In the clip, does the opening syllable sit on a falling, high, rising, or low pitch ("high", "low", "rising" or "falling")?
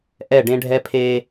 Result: falling